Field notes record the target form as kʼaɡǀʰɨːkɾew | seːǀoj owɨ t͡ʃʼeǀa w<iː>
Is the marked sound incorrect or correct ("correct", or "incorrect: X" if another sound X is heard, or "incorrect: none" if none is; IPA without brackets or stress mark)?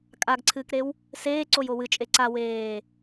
incorrect: eː